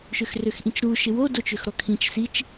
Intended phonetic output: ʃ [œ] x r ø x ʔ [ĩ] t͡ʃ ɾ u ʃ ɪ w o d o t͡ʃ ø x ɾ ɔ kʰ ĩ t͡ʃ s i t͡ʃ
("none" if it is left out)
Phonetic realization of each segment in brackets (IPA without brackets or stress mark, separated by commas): ø, ĩ